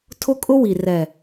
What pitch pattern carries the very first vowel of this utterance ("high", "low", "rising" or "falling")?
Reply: high